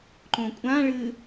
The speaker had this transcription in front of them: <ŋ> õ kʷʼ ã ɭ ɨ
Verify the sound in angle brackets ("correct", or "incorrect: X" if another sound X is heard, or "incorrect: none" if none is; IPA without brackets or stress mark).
incorrect: ǃ